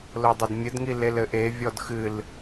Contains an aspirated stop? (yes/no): no